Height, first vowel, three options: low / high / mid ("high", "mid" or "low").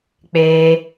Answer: mid